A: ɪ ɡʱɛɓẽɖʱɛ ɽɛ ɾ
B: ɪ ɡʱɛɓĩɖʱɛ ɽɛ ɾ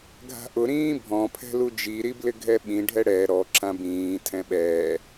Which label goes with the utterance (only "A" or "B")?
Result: B